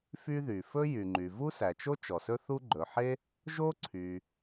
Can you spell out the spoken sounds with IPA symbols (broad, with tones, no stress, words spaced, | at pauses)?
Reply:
fy˥ðy˩ fɵ˥ jy˩ŋ͡ǃy˩ vu˥sæ˩t͡ʃo˥ t͡ʃɔ˩sɵ˥θu˥ ɡ͡ǃɵ˩ħe˥ | ʒo˥ǀʰy˩